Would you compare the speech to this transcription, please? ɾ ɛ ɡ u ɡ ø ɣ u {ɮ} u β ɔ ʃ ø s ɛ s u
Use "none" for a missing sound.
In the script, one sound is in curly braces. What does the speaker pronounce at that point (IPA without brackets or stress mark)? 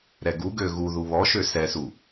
ð